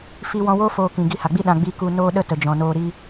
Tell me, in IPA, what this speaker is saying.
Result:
f i˧ w ɔ̃˧ w oː˦ f oː˧ k ĩ˨ ɡ i˧ h a˨ ɡ͡b i˦ ɗ ã˧ ɡ͡b i˧ k u˧ n oː˦ ɗ ə˦ t ə˨ d͡ʒ ɔ̃˨ n oː˧ ɾ i˦

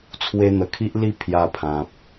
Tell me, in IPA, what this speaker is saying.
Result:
t͡sʰ w e˧ n̪ ə˨˩ kʰ i˦ ʔ l i˥˧ pʰ j a˧ pʰ ã˨ p̚

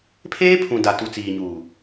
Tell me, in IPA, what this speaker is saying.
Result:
pʰ eː˦ pʰ ũ˨ d a˨ t u˨ t͡s iː˨ ɲ uː˨

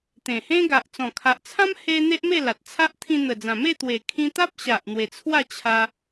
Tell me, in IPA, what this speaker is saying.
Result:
t̪ ẽ˨˩ h ẽ˦ ɡ a˨ ʔ t͡s ɔ̃˨˩ kʰ a˨ ʔ t͡sʰ ã˦ m h e˧ n̪ e˦ ʔ m e˥˧ l a˨ t̚ t͡sʰ a˦ ʔ t̪ʰ ĩ˧ n̪ ə˨˩ d͡z ã˨˩ m e˥˧ t̪ w e˨˩ kʰ ĩ˧ t̪ a˦ p̚ ɕ a˨ ʔ n̪ w e˨˩ t͡sʰ w a˥˧ t͡ɕʰ a˧

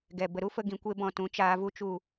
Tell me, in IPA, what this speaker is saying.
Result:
ɡ ɛ˨ b ə˨ ɾ u˦ f ə˧ ɡ ĩ˨ kʷ e˧ b ɔ̃˨ t ũ˨˦ t͡ʃ aː˧ v u˦ t͡ʃ u˦˨

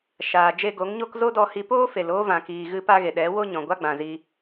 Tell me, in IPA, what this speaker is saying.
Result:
ʃ aː˨ d͡ʒ e˧ ɡ o˨˦ ŋ ɲ o˦ k z o˦ d ɔ˧ h i˧ p oː˦ f e˨ l oː˦ v ã˨ k iː˨ ɣ ɨ˧ p a˦ ɣ e˨ ɗ ɛ˨˦ w o˦ ɲ ɔ̃˨ ɡʷ a˦ ɡ͡b ã˨ z i˧

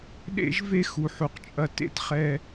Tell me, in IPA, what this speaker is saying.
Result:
ɗ ḛ˥ ʒ v e˥ x u˩ ħ u˩ q t͡ʃʼ ɐ˧ t ḛ˥ t χ ɛ˧

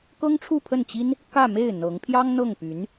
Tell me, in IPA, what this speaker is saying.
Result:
k ɤ˥ ŋ ʈ͡ʂʰ u˥˧ pʰ ə˥˩ n t͡ɕ i˥ n | k ä˥˧ m e˥˩ ɪ̯ n̪ ɤ˧˥ ŋ pʰ j ɑ˥ ŋ n̪ ɤ˥˩ ŋ p y˧˥ n

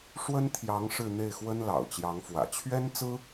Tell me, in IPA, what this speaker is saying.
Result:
ʂ w ə˥ n t̪ʰ j ɑ˧˥ ŋ ʂ ɻ̩˥˧ n̪ e˥˩ ɪ̯ x w ə˥ n l ɑ̰˨˩ ʊ̯ t͡ɕ j ɑ˧˥ ŋ f w ä̰˨˩ t͡ɕʰ ɥ ɛ˥ n t͡s ɹ̩˥

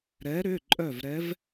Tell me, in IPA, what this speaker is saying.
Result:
ɾ ɛ˨˦ ɾ ʏ˩˧˩ ǃʼ œ˧˩ v ɾ ɛ˨˦ v

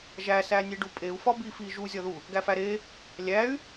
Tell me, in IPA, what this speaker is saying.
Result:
ʒ æ s æ nʲ e ɖ u pʼ e u̯ f ɒ b i f i ʒ u zʲ ɒ ð u | ɡ æ f æ ɾ e | lʲ æ y̯

